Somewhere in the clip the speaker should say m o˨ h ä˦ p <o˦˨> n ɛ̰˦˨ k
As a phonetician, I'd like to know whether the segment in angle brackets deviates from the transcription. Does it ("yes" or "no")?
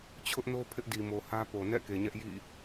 yes